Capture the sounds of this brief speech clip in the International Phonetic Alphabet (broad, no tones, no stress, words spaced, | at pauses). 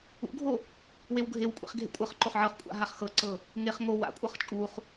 ṵɡʱo | wewɡʱewkʷʼḛχ ɡʱḛkʷʼɤχǃoχ ʕɤχkʷʼa̰ ɦaχxɤǀɤ | ŋeχ ŋo wa̰kʷʼɤχ t͡ʃʼuχ